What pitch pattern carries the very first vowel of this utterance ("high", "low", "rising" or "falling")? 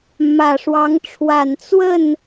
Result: low